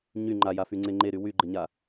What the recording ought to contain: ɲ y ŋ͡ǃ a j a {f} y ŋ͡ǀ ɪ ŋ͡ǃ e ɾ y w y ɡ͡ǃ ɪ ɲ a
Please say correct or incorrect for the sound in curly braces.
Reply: correct